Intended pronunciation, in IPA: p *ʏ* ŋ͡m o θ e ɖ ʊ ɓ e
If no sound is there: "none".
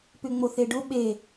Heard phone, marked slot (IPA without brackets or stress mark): ʏ